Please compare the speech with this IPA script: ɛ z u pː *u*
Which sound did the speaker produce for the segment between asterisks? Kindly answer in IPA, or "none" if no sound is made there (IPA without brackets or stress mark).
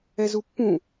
ũ